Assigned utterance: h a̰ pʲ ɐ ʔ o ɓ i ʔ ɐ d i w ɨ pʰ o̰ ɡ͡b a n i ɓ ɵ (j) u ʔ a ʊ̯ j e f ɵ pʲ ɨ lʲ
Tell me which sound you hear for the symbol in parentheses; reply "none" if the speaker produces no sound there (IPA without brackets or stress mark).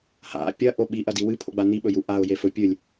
j